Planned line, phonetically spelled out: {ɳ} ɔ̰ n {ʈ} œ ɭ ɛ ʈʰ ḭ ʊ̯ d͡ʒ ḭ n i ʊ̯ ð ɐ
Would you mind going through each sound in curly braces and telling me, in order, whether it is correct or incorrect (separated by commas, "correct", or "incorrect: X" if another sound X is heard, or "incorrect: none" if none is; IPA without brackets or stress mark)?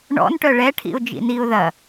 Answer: correct, correct